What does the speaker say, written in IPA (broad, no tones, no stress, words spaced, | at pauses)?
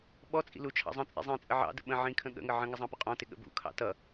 ɓɔt͡sʼḭ lut͡ʃʰɑ̰zˤə̃t͡sʼḭ zˤĩt͡sʼə ʕɑ̰də̰ ɓə̃ ʕĩkʰə̃ ɠə̰ŋə ʕə̃ŋɪ zˤɑ̃pʊqʼɔ̃tɪ ɠə̰bṵkʰɑ̰ tʌ